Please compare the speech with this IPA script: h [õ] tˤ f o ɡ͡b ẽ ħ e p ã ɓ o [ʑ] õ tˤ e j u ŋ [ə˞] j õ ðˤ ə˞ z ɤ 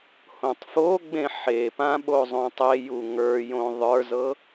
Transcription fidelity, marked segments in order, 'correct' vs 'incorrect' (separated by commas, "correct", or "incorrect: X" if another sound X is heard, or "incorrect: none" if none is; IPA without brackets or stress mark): correct, incorrect: zˤ, correct